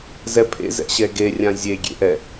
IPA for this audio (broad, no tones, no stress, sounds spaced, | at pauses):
z ɛ pʰ ḛ z ɛ̰ ɕ ɛ ɡ e rʲ ã zʲ e ɡʲ ḛ ʔ ɛ